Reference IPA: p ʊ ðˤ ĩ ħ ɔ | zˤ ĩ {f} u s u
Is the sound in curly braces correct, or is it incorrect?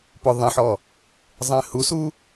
incorrect